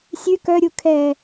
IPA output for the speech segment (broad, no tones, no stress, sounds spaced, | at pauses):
sʲ ʉ k œ ɾʲ u kʰ ɛ